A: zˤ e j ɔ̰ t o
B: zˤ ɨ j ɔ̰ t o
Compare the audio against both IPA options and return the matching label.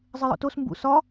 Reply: B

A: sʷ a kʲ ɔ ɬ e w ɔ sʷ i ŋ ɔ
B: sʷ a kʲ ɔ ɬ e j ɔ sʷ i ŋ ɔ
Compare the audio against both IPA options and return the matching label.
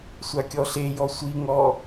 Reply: B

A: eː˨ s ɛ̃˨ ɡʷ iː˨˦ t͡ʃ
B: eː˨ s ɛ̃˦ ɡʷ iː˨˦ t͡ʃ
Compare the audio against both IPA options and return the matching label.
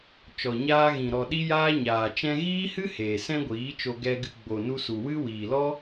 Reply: B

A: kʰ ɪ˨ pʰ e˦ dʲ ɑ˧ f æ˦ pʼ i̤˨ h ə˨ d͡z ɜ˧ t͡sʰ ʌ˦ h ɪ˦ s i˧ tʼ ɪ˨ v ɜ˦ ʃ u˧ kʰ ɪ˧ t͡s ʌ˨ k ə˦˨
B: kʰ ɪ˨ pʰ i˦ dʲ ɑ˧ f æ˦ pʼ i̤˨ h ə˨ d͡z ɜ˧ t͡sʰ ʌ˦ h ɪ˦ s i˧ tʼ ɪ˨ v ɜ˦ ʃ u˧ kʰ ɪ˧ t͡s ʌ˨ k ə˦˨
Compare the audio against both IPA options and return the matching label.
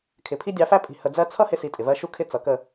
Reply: B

